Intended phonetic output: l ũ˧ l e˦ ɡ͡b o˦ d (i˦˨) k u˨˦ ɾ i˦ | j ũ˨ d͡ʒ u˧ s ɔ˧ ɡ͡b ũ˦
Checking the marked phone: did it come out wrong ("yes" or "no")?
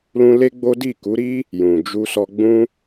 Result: no